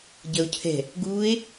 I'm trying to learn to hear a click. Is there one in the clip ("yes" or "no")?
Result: no